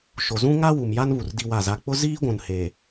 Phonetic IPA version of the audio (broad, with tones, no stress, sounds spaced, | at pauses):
ʃ o˨ z ũ˦ ŋ a˦ w u˨ m j a˦ n β u˨ r d i˦ w a˦˨ z a˦ k͡p ʊ˦ z iː˦ ɡʷ ũ˨ n h e˨